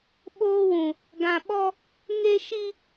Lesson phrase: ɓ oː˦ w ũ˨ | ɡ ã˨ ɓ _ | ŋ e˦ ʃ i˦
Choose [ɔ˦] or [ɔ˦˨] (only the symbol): ɔ˦